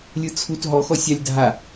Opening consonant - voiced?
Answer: yes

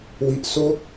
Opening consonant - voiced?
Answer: yes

